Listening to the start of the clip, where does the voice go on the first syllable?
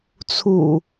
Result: low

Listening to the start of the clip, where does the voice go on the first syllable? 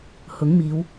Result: rising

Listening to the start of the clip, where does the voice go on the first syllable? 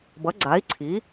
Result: rising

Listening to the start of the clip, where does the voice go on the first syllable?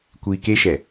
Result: low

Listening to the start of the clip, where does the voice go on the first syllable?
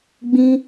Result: high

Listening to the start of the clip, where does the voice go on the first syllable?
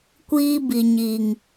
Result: high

